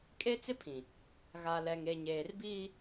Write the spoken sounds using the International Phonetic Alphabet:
kʼ e˦ t͡s ɪ˦ pʰ ĩ˨ | ɣ a˨ l ɛ˨ ŋ e˨ ɲ eː˨ r b iː˦

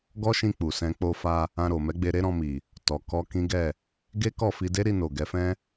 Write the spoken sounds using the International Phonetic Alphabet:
ɡ ɔ˦ ʃ ĩ˧ k͡p u˨ s ɛ̃˧ k͡p o˧ f a˧ | ã˧ ɾ o˨ m ɛ˨˦ ɡ͡b e˧ ɾ e˦ ɾ ɔ̃˧ m i˨ | t ɔ˨ k ɔ˧ k ĩ˦ ɡ ɛ˦˨ | ɡ e˦ k ɔ˦˨ f i˧ d e˦ ɾ i˧ n o˨ ɡ ɛ˨˦ f ɛ̃˦

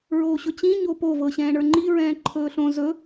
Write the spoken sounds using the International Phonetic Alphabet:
ɹ oː ɕ ɵ t͡ɕ ĩ ɲ o p o v ɤ ɕ ɛ̃ː ɳ ə˞ ŋ͡ǃ i ɹ ɛ̃ː ǃʰ ɵː ɬ õ z ɵ

